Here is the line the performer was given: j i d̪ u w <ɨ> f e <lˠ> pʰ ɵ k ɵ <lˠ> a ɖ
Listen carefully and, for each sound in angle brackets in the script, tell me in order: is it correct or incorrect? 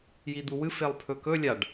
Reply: correct, correct, incorrect

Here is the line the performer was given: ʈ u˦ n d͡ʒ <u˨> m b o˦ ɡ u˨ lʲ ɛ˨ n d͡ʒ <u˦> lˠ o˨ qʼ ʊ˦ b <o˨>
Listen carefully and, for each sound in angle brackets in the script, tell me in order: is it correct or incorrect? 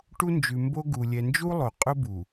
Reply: incorrect, correct, incorrect

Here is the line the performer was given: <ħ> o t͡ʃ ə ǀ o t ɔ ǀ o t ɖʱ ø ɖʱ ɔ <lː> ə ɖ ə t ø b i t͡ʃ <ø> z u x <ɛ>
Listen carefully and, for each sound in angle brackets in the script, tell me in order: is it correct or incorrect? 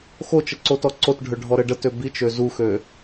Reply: incorrect, incorrect, correct, incorrect

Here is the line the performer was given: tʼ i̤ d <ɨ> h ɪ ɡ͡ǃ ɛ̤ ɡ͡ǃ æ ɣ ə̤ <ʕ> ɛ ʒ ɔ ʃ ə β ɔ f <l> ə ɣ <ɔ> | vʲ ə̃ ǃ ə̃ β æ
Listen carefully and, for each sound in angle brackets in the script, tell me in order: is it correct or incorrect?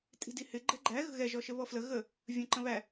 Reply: incorrect, incorrect, correct, incorrect

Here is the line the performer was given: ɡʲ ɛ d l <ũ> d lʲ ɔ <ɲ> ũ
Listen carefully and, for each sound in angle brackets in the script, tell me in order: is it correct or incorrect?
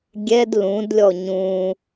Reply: correct, correct

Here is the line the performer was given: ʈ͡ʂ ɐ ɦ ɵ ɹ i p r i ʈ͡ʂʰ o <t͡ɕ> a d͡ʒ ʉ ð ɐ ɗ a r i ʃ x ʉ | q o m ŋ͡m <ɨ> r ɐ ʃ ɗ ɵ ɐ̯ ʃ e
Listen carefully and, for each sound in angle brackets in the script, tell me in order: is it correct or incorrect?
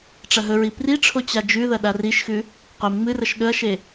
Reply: correct, correct

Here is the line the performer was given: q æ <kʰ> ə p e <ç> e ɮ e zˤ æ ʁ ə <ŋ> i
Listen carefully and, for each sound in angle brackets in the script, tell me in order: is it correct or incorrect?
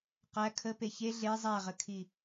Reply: correct, correct, incorrect

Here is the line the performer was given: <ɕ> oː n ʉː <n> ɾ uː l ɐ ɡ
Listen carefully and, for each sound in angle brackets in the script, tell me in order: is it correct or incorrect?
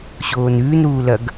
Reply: correct, correct

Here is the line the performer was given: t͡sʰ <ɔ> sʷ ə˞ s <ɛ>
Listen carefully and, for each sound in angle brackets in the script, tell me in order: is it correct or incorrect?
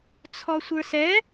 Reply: correct, correct

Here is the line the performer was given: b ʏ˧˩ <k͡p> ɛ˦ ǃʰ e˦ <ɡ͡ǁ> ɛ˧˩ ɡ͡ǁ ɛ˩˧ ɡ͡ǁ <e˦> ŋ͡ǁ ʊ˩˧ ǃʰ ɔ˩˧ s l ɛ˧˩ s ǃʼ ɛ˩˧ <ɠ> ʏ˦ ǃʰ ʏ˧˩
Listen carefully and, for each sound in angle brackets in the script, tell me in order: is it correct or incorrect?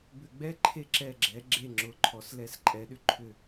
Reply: incorrect, incorrect, incorrect, incorrect

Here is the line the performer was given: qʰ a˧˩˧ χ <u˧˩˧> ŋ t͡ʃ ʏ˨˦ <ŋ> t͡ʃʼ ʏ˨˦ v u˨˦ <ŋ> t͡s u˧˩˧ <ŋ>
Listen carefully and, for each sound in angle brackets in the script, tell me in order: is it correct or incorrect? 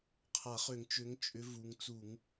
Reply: incorrect, correct, correct, correct

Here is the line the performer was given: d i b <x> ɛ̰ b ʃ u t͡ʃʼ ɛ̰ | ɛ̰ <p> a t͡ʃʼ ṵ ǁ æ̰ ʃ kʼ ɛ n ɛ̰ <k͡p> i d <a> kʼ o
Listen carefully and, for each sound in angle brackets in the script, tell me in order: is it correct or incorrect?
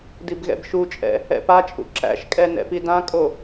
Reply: incorrect, correct, incorrect, incorrect

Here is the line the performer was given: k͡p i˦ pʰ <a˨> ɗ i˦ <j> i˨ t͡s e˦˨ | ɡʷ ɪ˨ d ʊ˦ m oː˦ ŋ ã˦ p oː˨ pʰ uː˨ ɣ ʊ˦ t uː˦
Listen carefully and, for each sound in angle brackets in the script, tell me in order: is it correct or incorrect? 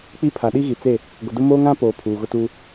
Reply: correct, incorrect

